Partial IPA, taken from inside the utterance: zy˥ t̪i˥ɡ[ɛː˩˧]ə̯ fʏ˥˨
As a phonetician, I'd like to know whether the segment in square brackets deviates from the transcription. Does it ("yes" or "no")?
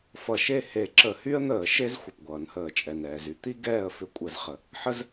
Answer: yes